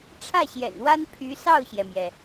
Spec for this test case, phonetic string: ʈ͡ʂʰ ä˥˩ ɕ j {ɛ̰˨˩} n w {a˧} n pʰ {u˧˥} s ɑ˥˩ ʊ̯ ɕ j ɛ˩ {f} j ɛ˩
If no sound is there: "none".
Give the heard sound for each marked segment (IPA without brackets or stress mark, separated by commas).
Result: ɛ̰˨˩, a˥, y˧˥, m